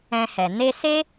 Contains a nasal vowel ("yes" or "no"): yes